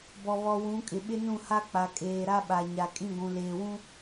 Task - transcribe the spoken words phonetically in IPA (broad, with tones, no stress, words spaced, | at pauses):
bɔ˨βɔ˨ wũ˨˦kʼɪ˨ ɓɪ˦nũ˦˨ha˦ k͡pa˨kʼeː˨ɾa˦ɓa˨ ɲa˨kʼĩ˦˨ɡʷũ˨ leː˨wũ˦